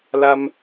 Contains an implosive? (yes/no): no